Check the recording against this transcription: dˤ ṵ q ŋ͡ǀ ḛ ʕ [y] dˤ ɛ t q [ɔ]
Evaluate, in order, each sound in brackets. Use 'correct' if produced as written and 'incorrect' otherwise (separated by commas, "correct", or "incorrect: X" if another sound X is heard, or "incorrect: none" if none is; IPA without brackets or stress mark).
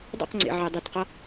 incorrect: e, incorrect: ʌ